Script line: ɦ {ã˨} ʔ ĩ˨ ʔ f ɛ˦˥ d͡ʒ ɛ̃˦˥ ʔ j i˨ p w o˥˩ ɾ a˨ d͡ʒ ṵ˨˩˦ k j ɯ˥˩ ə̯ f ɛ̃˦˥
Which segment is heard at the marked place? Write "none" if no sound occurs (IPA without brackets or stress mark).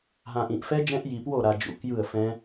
ã˨